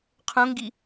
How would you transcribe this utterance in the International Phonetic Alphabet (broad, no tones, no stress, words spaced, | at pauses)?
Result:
qʰõŋɡi